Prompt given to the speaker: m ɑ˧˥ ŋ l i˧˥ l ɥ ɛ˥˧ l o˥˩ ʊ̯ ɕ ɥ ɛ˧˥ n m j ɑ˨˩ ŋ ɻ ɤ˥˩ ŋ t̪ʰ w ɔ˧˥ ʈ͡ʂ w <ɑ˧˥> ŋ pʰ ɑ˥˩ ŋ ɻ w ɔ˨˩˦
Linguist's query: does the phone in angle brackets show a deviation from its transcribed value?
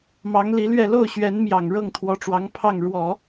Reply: no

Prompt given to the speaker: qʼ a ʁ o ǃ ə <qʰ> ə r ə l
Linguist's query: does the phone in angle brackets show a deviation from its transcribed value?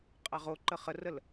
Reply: yes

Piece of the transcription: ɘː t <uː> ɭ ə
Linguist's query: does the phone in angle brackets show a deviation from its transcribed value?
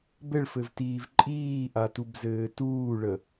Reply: no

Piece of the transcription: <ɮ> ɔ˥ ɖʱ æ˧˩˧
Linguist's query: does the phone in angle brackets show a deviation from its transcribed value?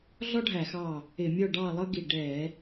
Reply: no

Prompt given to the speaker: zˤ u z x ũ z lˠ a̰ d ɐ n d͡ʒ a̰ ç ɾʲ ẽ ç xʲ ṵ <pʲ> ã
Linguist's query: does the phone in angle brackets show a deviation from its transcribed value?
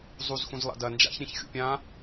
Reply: no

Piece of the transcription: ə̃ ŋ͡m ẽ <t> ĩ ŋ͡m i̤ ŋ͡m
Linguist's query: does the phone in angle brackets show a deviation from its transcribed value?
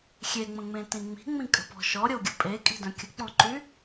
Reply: no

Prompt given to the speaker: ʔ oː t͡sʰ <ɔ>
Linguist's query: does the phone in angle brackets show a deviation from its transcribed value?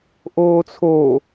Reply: yes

